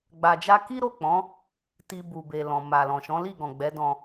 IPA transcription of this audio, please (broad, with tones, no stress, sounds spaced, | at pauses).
ɡ͡b a˧ d͡ʒ a˦ k i˦ ɾ o˦˨ k͡p ɔ̃˨˦ | t i˧ b u˨ b e˨ l ɔ̃˨ m a˨ l ɔ̃˨ ʃ ɔ̃˨˦ l i˦˨ ɡ ɔ̃˨ ɡ͡b ɛ˨˦ d ɔ̃˧